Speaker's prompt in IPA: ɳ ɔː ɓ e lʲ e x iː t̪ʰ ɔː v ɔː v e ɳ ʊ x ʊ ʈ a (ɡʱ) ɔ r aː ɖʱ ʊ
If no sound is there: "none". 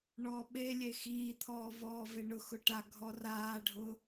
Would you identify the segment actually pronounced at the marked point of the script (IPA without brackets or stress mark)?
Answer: ɡʱ